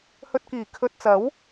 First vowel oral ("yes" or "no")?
yes